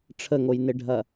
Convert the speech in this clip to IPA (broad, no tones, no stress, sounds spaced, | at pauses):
ʈ͡ʂʰ ə ŋ o j n ɪ ɖʱ ɐ